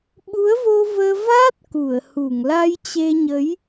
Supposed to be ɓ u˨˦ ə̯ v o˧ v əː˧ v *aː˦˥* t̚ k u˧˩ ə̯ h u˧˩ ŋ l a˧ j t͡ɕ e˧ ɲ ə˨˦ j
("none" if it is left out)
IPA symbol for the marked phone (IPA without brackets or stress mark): aː˦˥